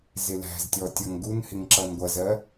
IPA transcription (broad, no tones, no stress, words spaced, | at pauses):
zɪlæ̤ztʲɔ tʲʌŋɡunhɪŋ ǁʌnɡʷʌzɜ